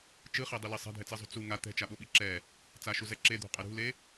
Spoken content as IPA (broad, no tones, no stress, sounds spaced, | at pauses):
t͡ʃ ɯ χ e dˤ i l i sˤ ɛ̤ dʱ ɛ t͡s e zˤ ṳ t͡s u ŋ a t̪ ɛ̤ t͡ʃ a ɓ o ɓ i ǁ ɛ | t͡s a ʃ u z ɛ ǁ e d̪ ṳ qʼ ɛ ɾ ṳ l e